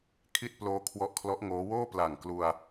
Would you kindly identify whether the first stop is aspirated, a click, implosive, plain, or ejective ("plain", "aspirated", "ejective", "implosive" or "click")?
aspirated